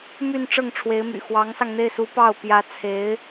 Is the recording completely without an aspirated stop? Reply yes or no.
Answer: no